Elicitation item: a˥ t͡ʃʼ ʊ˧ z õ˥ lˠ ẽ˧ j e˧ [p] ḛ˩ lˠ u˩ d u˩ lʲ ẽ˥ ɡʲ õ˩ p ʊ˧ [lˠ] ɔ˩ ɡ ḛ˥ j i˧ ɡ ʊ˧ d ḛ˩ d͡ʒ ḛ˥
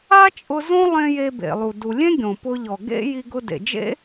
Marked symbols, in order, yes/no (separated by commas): no, no